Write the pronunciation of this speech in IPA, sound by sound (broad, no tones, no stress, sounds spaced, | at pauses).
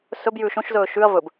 s ɵ b j ʉ ʃ õ ʃ z ɵː ʃ ʉ ɐ̯ v ɵ b